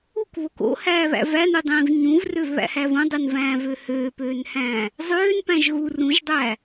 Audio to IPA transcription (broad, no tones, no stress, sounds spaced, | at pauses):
u k β o k o̰ h æː β æ̰ v æ n ɯ dˤ ĩː v ɲ ũ v r ø v β æ̰ h æ v ũ dˤ ɯ n v æ̃ː v ø h øː p øː n h æ̃ː | zˤ øː n p æ̃ ʒ ɣ u r ũ ʒ dˤ æː